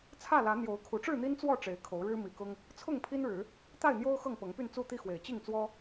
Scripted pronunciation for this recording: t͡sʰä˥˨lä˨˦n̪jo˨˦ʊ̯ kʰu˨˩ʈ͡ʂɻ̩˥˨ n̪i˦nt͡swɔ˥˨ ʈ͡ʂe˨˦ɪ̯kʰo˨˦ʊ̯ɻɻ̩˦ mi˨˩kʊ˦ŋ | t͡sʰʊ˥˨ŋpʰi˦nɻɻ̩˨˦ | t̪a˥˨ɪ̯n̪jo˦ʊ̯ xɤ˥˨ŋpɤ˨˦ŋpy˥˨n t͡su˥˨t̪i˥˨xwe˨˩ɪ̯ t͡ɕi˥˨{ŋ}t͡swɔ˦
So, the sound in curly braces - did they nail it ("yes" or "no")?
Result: yes